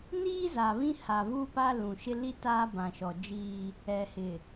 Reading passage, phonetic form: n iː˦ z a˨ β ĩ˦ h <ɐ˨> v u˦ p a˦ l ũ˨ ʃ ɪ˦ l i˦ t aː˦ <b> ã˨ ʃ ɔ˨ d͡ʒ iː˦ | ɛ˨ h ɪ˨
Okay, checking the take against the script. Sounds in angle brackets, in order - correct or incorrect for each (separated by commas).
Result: incorrect, correct